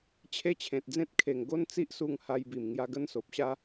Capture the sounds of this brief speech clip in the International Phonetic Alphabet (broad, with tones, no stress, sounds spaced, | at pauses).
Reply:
t͡ɕʰ e˦ t͡ɕʰ ẽ˨ t̚ d͡z ẽ˦ t̚ kʰ e˨˩ ŋ ɡ o˦ n t͡s i˦ ʔ s u˧ ŋ h a˧ j b i˨˩ m ŋ j a˧ ɡ ə˦ n s o˨ p̚ ɕ a˦